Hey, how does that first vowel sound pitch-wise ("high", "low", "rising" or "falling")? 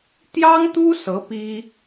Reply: high